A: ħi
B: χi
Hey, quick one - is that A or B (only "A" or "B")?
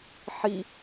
A